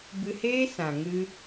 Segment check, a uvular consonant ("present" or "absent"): absent